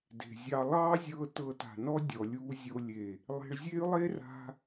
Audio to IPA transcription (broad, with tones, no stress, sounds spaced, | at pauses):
d e̤˨ zʲ ɑ˧ lˠ ɑ˦ zʲ ɤ˧ t ɤ˧ t a̤˨ n ɔ˦ dʲ ɔ˨ lʲ u˧ zʲ o˧ lʲ e˨ | lˠ e̤˧ ɭ zʲ e˦ y̯ lˠ e˦ r a̤˧